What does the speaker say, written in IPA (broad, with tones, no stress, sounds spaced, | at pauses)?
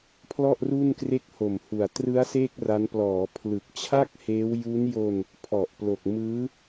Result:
pʰ l ɔ˥˩ ʔ r u˥˩ n k r e˥˩ k̚ h o˨˩ m h u˨˩ a̯ t r ɯ˦˥ a̯ s eː˥˩ k̚ r a˦˥ n p l ɔː˩˦ pʰ l ɯ˨˩ k̚ t͡ɕʰ a˥˩ k̚ h eː˦˥ w j u˦˥ n j o˧ n | pʰ ɔ˨˩ ʔ p l o˨˩ k̚ m ɯː˦˥